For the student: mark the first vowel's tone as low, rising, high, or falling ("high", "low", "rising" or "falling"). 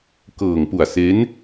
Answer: low